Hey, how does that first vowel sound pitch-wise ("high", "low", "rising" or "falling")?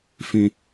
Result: high